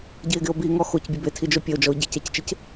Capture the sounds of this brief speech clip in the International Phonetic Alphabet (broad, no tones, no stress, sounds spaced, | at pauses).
ɟ i e̯ ɡ ɪ o̯ b i ŋ ɔ x o c bʲ e b e tʰ i d͡ʒ o pʲ e o̯ d͡ʒ ɔ o̯ ɟ ɪ c ɛ c t͡ʃ ɪ c